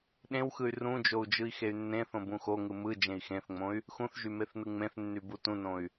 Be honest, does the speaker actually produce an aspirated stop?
no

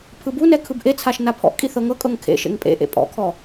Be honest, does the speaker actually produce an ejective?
yes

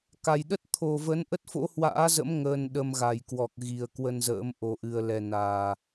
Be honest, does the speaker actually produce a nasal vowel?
no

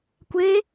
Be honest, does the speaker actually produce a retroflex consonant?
no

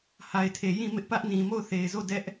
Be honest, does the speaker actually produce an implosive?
no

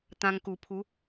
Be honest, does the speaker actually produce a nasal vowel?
yes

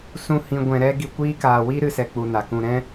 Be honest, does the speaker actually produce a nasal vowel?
yes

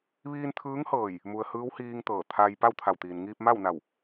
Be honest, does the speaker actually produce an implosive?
no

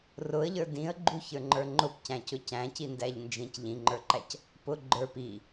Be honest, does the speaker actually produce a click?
yes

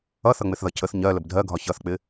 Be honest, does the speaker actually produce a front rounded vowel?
no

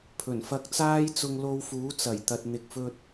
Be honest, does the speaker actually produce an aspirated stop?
yes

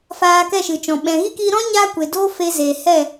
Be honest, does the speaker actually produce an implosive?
yes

